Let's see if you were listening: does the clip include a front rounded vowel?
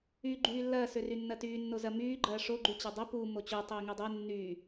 yes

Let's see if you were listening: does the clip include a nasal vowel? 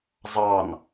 no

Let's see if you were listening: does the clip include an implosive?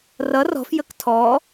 no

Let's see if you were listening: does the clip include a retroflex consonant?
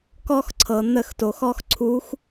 no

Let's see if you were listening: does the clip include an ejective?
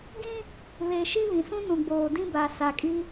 yes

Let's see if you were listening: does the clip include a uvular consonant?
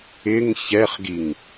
yes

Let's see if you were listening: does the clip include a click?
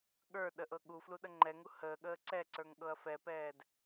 yes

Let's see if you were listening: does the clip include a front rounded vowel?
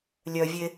yes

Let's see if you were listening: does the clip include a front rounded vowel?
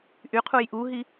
yes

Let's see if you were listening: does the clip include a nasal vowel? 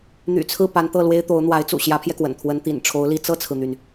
no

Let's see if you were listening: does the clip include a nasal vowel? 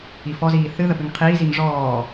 no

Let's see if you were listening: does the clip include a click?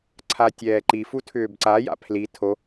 yes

